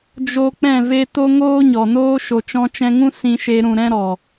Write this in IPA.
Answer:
d͡ʒo˧ k͡pɛ̃˦˨ve˦ to˦ŋoː˦ɲɔ˨noː˦ ʃo˨t͡ʃɔ̃˧t͡ʃɛ̃˧ŋũ˦ sĩ˦ʃe˦ɾũ˧ ɾɛ̃˦ɾɔ˨

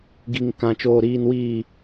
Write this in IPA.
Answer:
ɡi˨ŋ kã˨t͡ʃoː˨ɾiː˨n wiː˨

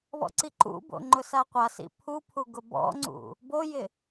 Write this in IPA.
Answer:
βɔ̰ǀiǃṵbo̰ ŋ͡ǃʊsaqʷasḭ pʰupʰu ɡʊbɔ̰ŋ͡ǀṵ | bojɪ

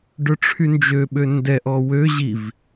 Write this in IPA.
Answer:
ɖœʈ͡ʂʰynd͡ʒøɓø ndɛʔ ɔwø ʑiv

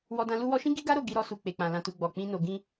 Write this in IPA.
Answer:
wɔ˧dã˧ lu˧wɔ˧ʃĩ˦ ɡi˦ɡa˦ɾo˦˨ ɡi˧ɾɔ˧su˨ k͡pe˨k͡pã˨ lã˨tu˨ ɡ͡bɔ˨ k͡pĩ˧no˨ ɡĩ˧

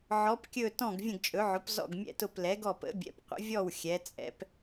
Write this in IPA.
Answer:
ʕɔ˩˧pkʲɵ˧˩ tɔ̃˧˩ɡvʲə̃˧˩ɡt͡ʃʼɵ˩˧ʕʊ˩˧p zɔ̰˧˩ɡmʲɛ̰˧˩tʊ˧˩p lɛ˩˧ɡɔ˧˩pə̰˩˧ bʲɛ̰˩˧pqʷə̰˩˧vʲɔ˧˩w xʲɛ˩˧t͡sʼɛ̰˩˧p

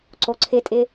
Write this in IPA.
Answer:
ǀoǀʰɪtʼɪ

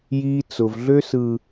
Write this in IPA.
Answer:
jiː˦t͡sʊ˨v ɮø˦sɯː˨

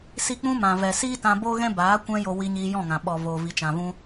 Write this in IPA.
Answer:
si˦ k͡pũ˧mã˨vɛ˨ siː˦tã˧ bo˦ɣɛ̃˦ baː˨˦kʷɛ̃˧ jo˨ wi˧ɲiː˧jɔ̃˦˨ŋã˨ ɓɔ˨ vo˨vi˨ t͡ʃã˨vũ˧

